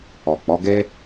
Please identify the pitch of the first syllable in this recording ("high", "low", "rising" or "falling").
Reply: low